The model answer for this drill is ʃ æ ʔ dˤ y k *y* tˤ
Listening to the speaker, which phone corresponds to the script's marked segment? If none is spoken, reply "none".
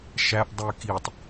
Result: i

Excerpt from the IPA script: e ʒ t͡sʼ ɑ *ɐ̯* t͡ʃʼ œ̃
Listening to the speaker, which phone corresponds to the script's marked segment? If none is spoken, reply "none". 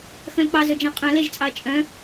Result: ɐ̯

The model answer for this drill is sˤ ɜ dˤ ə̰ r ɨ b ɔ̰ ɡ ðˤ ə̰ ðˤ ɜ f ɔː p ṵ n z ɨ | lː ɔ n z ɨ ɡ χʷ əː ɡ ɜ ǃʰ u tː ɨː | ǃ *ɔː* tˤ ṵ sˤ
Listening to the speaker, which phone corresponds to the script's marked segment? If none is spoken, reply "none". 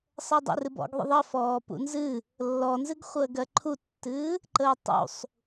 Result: əː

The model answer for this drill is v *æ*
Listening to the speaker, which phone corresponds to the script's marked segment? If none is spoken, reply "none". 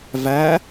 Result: æ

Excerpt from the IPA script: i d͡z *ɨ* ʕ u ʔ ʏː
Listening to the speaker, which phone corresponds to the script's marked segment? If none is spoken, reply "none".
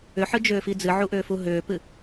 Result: ɨ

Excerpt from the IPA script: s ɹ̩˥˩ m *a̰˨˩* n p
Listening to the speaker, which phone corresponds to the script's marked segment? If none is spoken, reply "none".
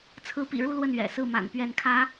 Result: a̰˨˩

